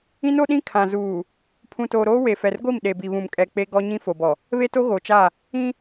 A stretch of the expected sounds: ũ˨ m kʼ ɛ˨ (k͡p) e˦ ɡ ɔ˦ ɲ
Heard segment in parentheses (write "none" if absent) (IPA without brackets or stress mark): k͡p